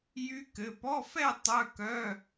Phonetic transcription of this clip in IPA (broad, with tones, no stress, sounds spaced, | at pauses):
j y˦˥ k ɘ˩˧˩ p ɔ˧˥˧ f ɛ˥˧ tˤ œ˧˥˧ k œ˧˥˧